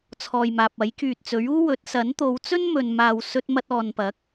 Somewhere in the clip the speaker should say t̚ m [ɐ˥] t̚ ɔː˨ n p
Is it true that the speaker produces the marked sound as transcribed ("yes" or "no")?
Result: no